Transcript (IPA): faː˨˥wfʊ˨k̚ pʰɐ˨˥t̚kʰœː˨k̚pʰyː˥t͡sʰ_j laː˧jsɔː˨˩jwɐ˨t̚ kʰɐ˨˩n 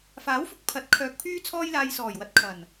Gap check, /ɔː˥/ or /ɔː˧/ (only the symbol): ɔː˥